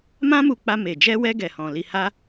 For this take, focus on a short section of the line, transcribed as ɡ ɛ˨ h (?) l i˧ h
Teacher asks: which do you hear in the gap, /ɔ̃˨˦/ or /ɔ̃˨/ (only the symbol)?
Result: ɔ̃˨